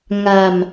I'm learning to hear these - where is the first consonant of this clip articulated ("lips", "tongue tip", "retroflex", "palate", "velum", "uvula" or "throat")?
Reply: velum